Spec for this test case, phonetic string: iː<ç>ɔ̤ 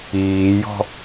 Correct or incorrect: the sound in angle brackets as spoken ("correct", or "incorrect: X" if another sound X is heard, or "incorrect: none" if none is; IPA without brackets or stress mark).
incorrect: j